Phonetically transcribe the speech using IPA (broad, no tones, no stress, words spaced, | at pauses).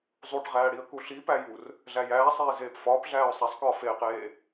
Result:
zˤuʈʁæːɽiə̯ kuɬipæjur | ɮæjæːsˤeː zeːpfɒːpɮæːʊ̯ sˤæsˤkɒː feːqeː